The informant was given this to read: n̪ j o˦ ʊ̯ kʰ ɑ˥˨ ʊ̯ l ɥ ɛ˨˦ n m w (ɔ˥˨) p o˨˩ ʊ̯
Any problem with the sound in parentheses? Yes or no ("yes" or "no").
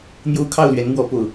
yes